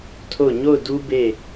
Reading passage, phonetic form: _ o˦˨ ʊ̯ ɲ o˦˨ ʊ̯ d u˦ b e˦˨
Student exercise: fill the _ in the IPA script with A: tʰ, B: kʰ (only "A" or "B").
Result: A